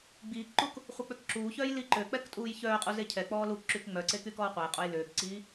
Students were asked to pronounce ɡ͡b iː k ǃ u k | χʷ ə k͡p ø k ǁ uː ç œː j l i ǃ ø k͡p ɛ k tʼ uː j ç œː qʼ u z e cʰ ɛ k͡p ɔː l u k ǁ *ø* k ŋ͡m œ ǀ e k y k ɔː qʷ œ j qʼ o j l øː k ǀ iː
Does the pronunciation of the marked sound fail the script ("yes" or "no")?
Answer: yes